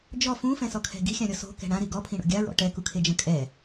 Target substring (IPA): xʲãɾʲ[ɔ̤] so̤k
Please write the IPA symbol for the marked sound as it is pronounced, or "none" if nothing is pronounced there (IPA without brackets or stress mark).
ɔ